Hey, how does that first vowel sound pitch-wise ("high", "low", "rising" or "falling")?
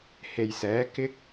low